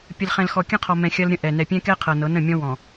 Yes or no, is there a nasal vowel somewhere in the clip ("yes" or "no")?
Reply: yes